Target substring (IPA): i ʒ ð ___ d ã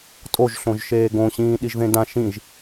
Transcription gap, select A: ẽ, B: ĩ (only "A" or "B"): A